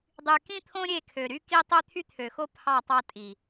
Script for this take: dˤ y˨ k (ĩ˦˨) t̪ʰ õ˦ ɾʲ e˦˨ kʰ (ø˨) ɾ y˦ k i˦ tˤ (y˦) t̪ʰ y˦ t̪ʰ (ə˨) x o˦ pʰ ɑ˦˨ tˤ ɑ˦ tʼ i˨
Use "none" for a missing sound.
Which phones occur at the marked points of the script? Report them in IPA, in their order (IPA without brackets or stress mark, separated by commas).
ĩ˦, ø˨, ø˦, ø˨